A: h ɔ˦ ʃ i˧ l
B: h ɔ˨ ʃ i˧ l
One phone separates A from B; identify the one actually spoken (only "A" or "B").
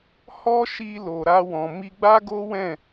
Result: A